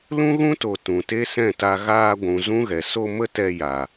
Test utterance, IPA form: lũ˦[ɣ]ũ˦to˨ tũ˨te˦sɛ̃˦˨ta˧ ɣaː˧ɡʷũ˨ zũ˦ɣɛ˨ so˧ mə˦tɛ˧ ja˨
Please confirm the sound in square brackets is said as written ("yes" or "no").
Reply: yes